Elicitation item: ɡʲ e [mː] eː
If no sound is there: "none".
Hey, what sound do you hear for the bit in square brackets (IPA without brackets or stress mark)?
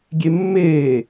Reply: mː